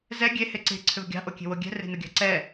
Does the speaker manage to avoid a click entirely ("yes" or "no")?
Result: no